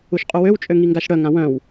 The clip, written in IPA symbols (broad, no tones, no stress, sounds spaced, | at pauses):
u ʃ qʼ u w ø w t͡ʃʼ ø ŋ i ŋ ɡ a ʃ ɽ œ ŋ ã w œ̃ w